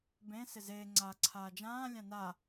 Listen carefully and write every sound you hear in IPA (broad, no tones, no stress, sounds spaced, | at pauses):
b ẽ s ɪ z eː ŋ͡ǀ aː ǀʰ aː d͡ʒ ãː lʲ ã n a